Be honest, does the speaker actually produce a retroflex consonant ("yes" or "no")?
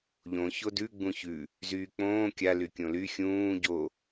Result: no